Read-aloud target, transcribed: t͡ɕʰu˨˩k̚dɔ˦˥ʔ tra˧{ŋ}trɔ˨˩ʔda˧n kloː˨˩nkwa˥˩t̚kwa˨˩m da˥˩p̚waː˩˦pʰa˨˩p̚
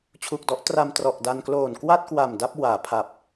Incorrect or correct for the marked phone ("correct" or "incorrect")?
incorrect